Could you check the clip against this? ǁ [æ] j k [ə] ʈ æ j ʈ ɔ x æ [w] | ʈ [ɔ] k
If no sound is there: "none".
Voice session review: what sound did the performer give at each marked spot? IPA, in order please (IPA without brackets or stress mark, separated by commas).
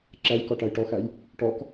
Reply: æ, ɔ, j, ɔ